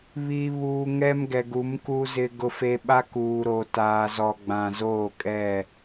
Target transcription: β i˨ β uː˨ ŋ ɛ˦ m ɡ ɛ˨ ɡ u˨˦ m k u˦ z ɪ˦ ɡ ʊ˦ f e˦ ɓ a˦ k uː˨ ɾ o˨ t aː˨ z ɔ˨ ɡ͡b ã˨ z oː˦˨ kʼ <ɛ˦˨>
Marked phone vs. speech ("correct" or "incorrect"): correct